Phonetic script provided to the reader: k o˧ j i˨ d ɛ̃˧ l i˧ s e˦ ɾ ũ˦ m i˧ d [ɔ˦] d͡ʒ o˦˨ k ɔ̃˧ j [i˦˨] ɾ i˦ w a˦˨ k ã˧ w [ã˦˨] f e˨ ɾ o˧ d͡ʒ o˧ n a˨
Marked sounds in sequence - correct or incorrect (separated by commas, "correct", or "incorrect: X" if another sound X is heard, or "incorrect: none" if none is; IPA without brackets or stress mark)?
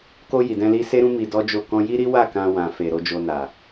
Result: correct, incorrect: i˦, incorrect: ã˨